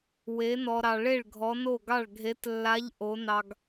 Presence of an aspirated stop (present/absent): absent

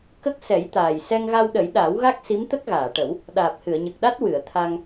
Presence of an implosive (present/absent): present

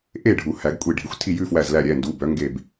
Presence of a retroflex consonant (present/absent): present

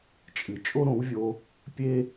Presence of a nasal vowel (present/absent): present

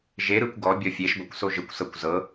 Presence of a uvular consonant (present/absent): absent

